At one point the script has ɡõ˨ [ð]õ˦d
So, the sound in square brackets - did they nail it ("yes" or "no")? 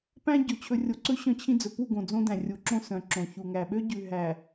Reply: no